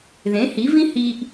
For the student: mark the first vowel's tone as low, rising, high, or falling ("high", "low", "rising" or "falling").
rising